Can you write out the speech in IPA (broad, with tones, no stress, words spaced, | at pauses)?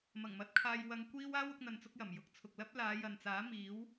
mɐ˨˩ŋmɐ˧t̚kʰaː˧j wɐ˧ŋ kʷiː˥w aː˥w ʊ˥k̚n̪ɐ˧nt͡sʊ˥k̚jɐ˨˩m jʊ˨k̚t͡sʰʊ˨k̚lɐ˥p̚ laː˨˧jɐ˨nt͡saː˨˥ miː˨˥w